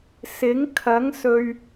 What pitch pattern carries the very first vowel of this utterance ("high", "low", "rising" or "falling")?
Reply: rising